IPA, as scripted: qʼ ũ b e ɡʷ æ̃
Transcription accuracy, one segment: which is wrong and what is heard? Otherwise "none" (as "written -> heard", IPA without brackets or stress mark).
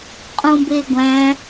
none